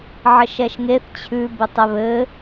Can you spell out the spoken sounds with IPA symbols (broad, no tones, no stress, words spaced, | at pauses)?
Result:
ʕɘʃɛʃŋeθ t͡ɕʰʉ bɘtˤɛβɘ